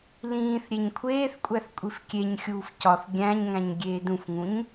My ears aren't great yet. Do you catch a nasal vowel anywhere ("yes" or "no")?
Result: yes